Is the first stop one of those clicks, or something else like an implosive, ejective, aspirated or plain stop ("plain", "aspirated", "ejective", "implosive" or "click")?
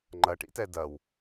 click